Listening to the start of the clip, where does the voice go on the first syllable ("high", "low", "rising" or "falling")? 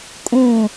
falling